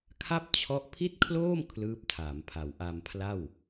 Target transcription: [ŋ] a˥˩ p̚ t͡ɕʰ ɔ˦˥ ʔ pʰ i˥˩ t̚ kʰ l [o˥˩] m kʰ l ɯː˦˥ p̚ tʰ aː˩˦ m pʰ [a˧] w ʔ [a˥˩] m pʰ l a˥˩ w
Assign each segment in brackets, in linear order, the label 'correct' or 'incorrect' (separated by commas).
incorrect, incorrect, incorrect, incorrect